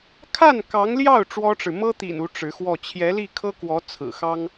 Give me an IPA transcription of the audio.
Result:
kʰ a˥˩ n k ɑ˧˥ ŋ l j ɑ˥˩ ʊ̯ ʈ͡ʂ w ɔ˥ ʈ͡ʂ ɻ̩˨ m ɤ˥ t̪ ḭ˨˩ n u˧˥ ʈ͡ʂ ɻ̩˧˥ x w ɔ˥˩ t͡ɕʰ j ɛ˧˥ l i˥˩ kʰ ɤ˥ k w ɔ˧˥ t͡sʰ ɹ̩˨˩ x ɑ˥ ŋ

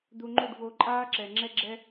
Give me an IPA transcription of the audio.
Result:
d̪ u˧ ŋ͡ǃ u˦˨ ɖ v o˧ ǃʼ aː˦ ǁ ɛ˨ ŋ͡ǁ ɛ˦ ɡ͡ǁ ɛ˦

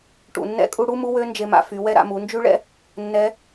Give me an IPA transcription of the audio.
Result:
ʈ ṵ˩ nː ɛ̰˧˥ kʼ u˧ ɽ u˥ m u˧˥ w ø˧˥ n d͡ʒ e˧ m a̰˧ f y˩˧ w ɛ˥ ɾ a̰˧ m u˩˧ n d͡ʒ y˥ ɭ ɛ̰˥ | nː ɛ˧˥

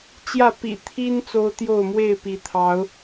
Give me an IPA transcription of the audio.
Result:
t͡ɕ j ä˥˨ p ḭ˨˩ t̪ʰ i˦ n t͡s o˦ ʊ̯ t̪ j o˥˨ ʊ̯ m w e˥˨ ɪ̯ p i˨˦ t̪ʰ ɑ˨˦ ʊ̯

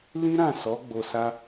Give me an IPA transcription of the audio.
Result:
l ĩ˦ ɾ ã˦˨ s ɔ˨˦ ɡ͡b o˧ s a˦

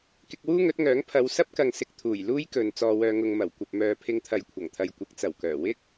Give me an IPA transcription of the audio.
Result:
k ɪ˧ k̚ w uː˥ ŋ ɵ˨˥ t̚ ŋ œː˨˥ ŋ pʰ ɐ˨˧ w s ɐ˥ p̚ k ɐ˨ ŋ s ɪ˧ k̚ t̪ʰ uː˨˩ j l uː˥ j k ɵ˨ n t͡s ɔː˨ w œː˨ ŋ ʊ˨ ŋ m ɐ˨˩ w kʷ ɐ˨ p̚ m œː˨ pʰ ɪ˧ ŋ t̪ʰ ɐ˨ j kʷʰ ɐ˨˩ ŋ t̪ʰ ɐ˨ j kʷ ɪ˨˥ k̚ t͡s ɐ˨˩ w k œː˨˩ w ɪ˥ k̚

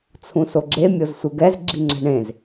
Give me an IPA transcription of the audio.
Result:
t͡sʰ ũ s o ɡ͡ǁ e mʲ o z sʷ ɯ ɡ ɛ z ɡ͡ǁ i ŋ͡ǁ ɛ̤ ɳ ẽ z

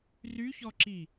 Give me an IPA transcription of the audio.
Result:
r y ç ɔ ǁ i

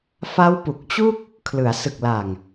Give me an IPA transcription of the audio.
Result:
f a˦˥ w p u˨˩ k̚ t͡ɕ u˥˩ k̚ | kʰ l ɯ˩˦ a̯ s ɯ˨˩ k̚ l a˨˩ ŋ

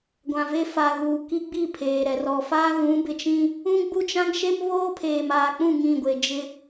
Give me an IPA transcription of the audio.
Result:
ɡʷ ã˨ v e˦ f a˨ ɣ uː˨ k i˦ ɡ͡b i˦˨ pʰ eː˨ ɾ ɛ˨ r ɔ˨ f a˦ ɣ ũ˨˦ b ɪ˨ t͡ʃ ĩ˦ | ũ˦ ɡ͡b u˦ t͡ʃ ã˦ ŋ ʃ e˦ m β oː˦ pʰ eː˨ m aː˨ k͡p ũ˦˨ ŋ ĩ˦˨ ɡʷ e˨ d͡ʒ ɪ˦

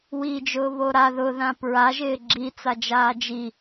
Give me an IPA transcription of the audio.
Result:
w i d͡ʒ ʊː β o ɾ a ð ʊ ð ã p ɹ a ʒ ɪː ɡ͡ǁ i t͡s a d͡ʒ aː d͡ʒ i

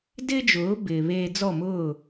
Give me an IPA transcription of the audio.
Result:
d ɪː˥ d͡ʒ ʊː˩˥ b ɪː˩ β eː˧ d͡z ɔ˥˩ m ʊː˥˩

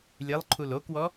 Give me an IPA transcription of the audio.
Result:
lʲ e lˠ ǃʰ u l o k w ɔ

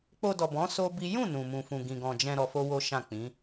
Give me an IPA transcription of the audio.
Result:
k͡p o˧ d ɔ˨ b ɔ̃˨˦ s o˦ b i˦ j ũ˦˨ n ũ˧ m ũ˧ f ũ˧ ɡ ĩ˧ ɡ ɔ̃˧ d͡ʒ ɛ̃˧ ɾ ɔ˧ f o˦ w o˦ ʃ ã˦˨ k͡p ĩ˨˦

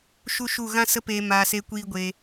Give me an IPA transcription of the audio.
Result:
ʃ u˦ ʃ u˦˨ ɣ ã˦ s ə˦ p eː˧ m aː˧ s e˦ kʷ iː˦ ɡʷ e˧

